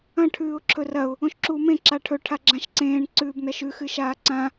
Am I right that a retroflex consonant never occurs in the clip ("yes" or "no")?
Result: no